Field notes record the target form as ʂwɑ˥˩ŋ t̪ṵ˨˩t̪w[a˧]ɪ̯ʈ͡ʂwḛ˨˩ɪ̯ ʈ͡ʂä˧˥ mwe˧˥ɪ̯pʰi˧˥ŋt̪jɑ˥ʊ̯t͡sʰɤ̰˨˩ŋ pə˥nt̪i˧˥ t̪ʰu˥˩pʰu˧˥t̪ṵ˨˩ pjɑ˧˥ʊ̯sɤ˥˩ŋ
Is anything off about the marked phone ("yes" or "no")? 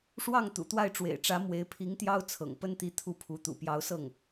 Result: yes